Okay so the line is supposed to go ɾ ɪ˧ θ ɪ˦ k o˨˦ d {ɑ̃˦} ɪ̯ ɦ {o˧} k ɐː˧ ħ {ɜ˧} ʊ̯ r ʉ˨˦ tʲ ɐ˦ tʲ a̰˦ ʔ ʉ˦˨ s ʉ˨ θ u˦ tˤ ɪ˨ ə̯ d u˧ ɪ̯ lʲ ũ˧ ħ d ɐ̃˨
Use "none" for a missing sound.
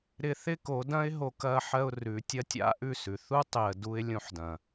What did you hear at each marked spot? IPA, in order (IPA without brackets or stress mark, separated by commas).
ɐ̃˦, o˧, ɜ˧